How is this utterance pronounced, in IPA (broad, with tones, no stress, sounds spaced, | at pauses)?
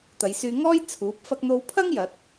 t̪ ɐ˨˧ j s yː˧ ŋ ɔː˥ j t͡sʰ uː˨˥ p̚ f ɐ˧ k̚ n̪ o˧ w pʰ ɐ˥ ŋ j ɐ˨˥ t̚